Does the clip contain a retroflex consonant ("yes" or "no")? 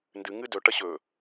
yes